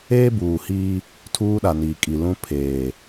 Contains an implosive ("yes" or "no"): yes